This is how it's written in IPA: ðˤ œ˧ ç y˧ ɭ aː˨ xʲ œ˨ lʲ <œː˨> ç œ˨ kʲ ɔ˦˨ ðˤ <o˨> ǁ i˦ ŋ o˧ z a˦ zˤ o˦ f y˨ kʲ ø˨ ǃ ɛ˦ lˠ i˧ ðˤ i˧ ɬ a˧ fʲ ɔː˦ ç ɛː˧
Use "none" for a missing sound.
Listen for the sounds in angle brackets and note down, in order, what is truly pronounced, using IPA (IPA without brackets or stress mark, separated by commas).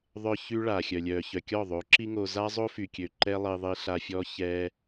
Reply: œː˨, o˨˦